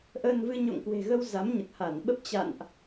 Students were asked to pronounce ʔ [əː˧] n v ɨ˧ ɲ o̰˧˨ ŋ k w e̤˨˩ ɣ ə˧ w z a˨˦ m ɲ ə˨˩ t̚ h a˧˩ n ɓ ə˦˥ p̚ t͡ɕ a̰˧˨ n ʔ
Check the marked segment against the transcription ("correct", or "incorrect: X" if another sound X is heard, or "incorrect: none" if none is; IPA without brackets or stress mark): correct